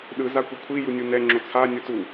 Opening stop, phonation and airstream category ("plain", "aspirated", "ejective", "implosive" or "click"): implosive